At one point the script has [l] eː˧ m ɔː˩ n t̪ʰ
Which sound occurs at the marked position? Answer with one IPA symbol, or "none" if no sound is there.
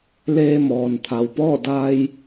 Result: l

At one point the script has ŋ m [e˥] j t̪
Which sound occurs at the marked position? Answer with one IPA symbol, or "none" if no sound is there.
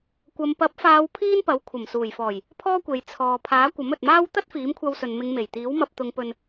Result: e˨˩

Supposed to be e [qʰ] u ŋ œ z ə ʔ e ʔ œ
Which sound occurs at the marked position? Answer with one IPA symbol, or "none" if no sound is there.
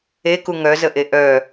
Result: k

